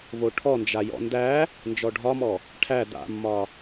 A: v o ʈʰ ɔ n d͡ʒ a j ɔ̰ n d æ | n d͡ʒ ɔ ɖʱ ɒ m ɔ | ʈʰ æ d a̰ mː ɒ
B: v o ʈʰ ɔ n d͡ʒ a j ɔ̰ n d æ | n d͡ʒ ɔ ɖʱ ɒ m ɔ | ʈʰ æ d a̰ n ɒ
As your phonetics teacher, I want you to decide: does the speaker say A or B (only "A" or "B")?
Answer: A